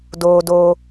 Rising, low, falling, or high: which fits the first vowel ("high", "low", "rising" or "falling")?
high